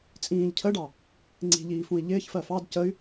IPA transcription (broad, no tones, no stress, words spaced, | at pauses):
t͡sʼĩːʎ cʰəɖɑ | ŋ͡ǀi̤ʎiːfũi̯ ʎɪːçfɜ fɑd cəy̯